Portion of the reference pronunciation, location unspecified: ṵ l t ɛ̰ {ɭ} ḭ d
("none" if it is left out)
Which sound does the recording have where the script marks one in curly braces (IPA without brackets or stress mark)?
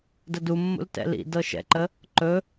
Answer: l